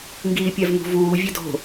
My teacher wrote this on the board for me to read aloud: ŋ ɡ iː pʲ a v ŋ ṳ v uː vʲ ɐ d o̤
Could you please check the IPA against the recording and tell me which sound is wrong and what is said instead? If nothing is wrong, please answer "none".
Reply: none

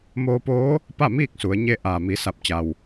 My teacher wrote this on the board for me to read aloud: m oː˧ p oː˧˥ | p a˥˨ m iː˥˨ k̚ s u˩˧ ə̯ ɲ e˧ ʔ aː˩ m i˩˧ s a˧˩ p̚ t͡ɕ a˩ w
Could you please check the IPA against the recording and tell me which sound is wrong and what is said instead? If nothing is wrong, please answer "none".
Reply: none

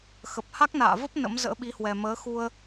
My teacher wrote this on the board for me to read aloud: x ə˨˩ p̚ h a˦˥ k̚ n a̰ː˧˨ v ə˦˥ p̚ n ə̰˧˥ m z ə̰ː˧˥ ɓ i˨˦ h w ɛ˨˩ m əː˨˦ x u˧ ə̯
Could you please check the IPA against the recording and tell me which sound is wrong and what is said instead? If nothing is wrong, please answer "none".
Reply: none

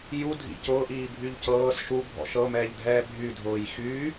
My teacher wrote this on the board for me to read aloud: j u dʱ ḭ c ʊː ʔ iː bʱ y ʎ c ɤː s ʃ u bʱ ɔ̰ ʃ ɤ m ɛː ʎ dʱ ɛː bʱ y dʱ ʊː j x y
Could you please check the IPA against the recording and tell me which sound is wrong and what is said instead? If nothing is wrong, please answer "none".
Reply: none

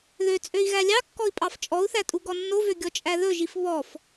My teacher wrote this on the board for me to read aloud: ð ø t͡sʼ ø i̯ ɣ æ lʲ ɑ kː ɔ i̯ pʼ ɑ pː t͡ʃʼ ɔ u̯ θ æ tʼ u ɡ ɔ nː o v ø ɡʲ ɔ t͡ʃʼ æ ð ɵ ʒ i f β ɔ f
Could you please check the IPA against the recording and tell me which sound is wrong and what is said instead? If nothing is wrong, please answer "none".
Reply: pː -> f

